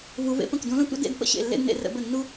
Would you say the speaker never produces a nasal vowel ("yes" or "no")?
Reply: no